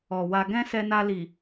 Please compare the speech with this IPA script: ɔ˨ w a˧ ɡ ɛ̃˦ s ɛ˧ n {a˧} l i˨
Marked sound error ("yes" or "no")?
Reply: no